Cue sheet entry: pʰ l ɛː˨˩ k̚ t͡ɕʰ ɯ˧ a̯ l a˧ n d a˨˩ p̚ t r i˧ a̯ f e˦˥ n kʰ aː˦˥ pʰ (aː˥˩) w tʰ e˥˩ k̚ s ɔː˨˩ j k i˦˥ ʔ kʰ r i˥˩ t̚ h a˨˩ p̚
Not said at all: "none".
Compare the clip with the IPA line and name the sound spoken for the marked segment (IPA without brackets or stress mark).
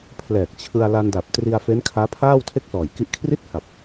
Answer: aː˥˩